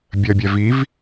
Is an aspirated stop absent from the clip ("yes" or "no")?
yes